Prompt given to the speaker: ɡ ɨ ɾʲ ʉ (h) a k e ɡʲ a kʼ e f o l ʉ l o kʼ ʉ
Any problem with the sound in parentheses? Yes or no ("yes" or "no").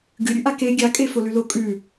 yes